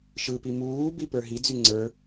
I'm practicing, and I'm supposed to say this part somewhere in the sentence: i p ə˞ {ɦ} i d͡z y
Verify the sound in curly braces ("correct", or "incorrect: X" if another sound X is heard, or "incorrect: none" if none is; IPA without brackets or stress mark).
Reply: correct